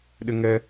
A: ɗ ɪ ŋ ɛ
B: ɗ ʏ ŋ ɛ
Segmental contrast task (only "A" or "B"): A